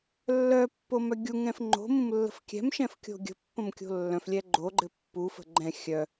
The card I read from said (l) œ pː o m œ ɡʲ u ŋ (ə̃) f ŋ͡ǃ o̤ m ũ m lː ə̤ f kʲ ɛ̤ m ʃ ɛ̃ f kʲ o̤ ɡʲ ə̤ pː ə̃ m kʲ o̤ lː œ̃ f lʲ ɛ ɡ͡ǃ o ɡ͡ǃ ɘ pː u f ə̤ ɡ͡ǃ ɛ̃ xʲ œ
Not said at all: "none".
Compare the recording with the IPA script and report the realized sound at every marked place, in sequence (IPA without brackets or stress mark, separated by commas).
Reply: lː, ɛ̃